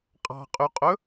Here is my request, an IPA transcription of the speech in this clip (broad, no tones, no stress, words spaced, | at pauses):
qʼɑ̤qʼyqʼɵ